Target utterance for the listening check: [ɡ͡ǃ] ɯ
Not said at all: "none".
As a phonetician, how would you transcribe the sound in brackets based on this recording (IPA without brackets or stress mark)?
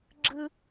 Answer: ɡ͡ǁ